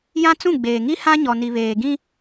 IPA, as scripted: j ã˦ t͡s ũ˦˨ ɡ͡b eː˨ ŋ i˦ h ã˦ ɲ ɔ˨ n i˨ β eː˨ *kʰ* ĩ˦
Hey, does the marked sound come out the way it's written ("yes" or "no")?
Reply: no